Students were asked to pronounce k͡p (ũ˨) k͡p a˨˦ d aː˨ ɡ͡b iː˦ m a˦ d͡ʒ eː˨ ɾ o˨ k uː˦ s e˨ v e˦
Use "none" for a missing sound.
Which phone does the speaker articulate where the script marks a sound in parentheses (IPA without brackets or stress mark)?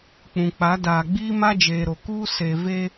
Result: ũ˨